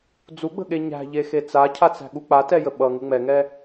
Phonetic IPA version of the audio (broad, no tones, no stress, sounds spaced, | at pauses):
d͡z u ɡ͡b ə̤ ɠ e ɲ æ̤ ʎ e x e t͡s a cʰ a t͡s æ̤ ɠ u k͡p a t ɛ j ə ɓ ʌ ŋ u ŋ͡m ɛ ŋ ɛ